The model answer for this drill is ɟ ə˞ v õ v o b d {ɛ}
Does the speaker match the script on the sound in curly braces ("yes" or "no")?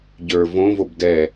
yes